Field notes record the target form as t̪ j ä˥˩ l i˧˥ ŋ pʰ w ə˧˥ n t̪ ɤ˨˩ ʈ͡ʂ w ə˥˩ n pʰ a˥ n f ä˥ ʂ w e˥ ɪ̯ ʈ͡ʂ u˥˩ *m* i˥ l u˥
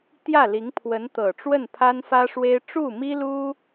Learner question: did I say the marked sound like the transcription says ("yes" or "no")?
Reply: yes